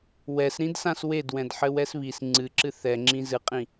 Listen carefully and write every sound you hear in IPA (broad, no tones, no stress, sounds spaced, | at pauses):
w ɛ s ɾ ĩ d s ã s w e d w ɛ̃ d ħ ɘ w ɛ s β i s ŋ͡ǀ ɨ ǁ ɨ θ ɛ ŋ͡ǁ ĩ z ɨ qʼ ĩ